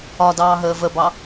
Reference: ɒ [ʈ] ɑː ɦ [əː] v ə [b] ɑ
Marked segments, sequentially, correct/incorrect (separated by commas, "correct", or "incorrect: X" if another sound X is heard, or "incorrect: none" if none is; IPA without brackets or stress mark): incorrect: d, correct, correct